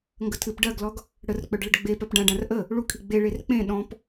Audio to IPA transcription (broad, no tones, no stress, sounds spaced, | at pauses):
ŋ ɡ ə tʰ ɨ p ɖ ɜ ɡ l ɔ ɡ | ɽ ə r k͡p œ ɖ ɭ ə ɖ ɡ͡b e p œ p ɖ ã ɖ ã r ʔ ə | ɭ u kʰ i ɡ͡b e ɭ e r k͡p ẽ ɗ ɔ̃ p